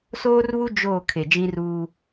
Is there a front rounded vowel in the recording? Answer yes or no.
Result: no